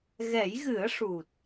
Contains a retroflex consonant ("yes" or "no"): yes